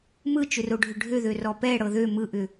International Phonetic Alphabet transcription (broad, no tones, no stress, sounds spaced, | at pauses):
m ɯ t͡ʃ ʏ r o ɖʱ ʏ ɖʱ ø ð ø r ɔ p ɛ ɽ ɤ ð ø m ɯ ʔ ʏ